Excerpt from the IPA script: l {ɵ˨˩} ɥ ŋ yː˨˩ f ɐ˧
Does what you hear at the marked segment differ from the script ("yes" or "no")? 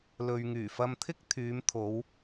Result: yes